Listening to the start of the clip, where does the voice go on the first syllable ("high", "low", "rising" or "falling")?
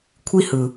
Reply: high